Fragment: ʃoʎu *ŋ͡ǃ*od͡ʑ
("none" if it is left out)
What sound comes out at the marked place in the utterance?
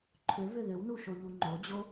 ŋ͡ǃ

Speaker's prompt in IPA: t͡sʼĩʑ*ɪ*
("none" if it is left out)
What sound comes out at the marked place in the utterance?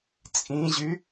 y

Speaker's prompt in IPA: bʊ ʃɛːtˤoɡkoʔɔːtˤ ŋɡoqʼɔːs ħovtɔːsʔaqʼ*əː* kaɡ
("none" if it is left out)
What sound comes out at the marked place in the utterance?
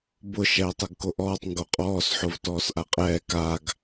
ɛː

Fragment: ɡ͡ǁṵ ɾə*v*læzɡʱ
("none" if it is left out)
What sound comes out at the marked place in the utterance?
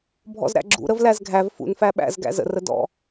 v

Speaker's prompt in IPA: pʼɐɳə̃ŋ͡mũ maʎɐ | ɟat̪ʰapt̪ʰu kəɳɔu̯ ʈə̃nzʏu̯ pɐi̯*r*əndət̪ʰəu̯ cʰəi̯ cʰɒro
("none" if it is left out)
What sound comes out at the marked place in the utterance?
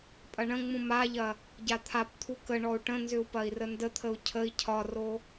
r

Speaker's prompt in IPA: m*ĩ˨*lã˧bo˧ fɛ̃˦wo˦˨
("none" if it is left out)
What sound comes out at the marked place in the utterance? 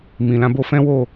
ĩ˨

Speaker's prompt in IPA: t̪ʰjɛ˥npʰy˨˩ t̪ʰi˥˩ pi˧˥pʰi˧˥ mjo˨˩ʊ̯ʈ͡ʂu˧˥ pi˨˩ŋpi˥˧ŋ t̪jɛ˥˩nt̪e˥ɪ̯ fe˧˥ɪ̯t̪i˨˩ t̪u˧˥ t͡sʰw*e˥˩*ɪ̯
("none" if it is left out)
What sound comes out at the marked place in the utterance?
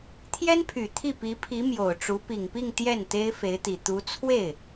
e˥˩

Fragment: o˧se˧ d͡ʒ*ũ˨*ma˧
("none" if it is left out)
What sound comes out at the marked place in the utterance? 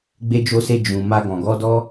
ũ˨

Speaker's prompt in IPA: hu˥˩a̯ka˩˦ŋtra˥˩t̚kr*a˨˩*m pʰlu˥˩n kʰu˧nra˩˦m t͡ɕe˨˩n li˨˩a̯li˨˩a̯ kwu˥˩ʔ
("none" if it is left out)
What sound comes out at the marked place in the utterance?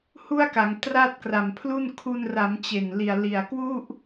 a˨˩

